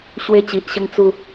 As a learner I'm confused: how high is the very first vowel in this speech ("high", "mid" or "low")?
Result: mid